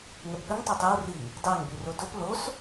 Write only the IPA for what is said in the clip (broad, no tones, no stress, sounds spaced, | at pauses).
ŋ ɛ p ɠ ə ŋ tˤ o tˤ ɛ w r i | d ɑ ŋ b y r o d o p l o s